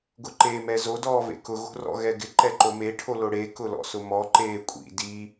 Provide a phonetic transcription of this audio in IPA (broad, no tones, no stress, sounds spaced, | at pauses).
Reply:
ɡ ʊ ǃ eː m ɛ z o d ɔː v ḛ k ʊ ɣ o̤ r ɔ̰ ɣ ɛ ɡ ɪ ǃ ɛ ǃ o m e ʈʰ o l o ɽ e k ʊ l ɔ̰ s ʊ m ɔ ǃ eː kʷʼ ḭ d i